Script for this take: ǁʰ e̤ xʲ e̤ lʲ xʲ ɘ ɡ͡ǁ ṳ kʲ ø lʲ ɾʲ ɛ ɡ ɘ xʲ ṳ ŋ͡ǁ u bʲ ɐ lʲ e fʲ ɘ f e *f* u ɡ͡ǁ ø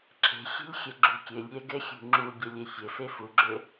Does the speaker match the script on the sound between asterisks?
yes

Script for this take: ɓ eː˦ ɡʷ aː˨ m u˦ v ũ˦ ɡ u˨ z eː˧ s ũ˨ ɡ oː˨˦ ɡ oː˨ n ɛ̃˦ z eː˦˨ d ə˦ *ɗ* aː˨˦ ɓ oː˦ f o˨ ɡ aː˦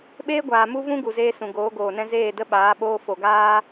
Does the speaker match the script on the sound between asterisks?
no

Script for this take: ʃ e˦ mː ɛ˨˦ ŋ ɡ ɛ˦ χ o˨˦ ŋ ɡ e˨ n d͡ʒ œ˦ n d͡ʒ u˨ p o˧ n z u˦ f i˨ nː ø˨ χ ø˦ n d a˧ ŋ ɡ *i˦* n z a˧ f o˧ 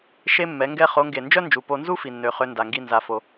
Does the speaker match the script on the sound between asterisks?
yes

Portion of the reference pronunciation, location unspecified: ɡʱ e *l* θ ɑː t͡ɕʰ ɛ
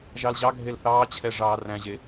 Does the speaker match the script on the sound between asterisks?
yes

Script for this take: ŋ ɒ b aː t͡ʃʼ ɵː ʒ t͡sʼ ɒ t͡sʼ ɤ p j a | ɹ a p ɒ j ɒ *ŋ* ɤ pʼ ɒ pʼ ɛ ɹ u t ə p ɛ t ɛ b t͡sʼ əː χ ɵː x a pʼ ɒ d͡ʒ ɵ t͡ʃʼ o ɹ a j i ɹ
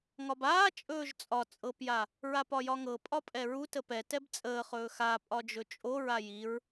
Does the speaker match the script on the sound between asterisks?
yes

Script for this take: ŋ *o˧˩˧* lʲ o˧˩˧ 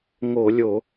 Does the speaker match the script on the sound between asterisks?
yes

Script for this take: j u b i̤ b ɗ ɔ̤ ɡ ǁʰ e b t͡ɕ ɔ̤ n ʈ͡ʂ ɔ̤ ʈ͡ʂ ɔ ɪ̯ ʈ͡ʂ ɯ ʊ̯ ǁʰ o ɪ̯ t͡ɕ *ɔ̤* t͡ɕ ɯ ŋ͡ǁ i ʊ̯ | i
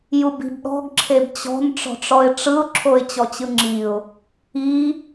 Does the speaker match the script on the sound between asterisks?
no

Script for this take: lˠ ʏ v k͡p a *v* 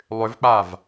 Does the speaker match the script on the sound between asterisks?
yes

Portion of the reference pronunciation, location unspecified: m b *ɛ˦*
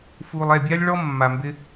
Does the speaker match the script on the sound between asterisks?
no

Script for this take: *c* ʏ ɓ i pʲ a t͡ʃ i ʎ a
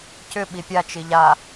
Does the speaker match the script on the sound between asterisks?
yes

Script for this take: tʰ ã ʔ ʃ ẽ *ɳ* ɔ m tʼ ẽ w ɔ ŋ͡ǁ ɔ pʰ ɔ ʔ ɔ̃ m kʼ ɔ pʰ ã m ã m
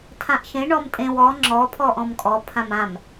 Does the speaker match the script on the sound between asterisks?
yes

